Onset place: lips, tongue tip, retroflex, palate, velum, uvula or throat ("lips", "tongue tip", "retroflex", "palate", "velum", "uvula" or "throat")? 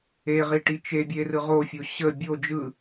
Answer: uvula